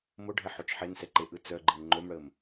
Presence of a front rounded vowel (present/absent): present